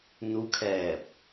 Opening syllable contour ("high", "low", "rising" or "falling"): rising